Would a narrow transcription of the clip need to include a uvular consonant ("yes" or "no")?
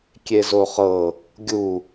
yes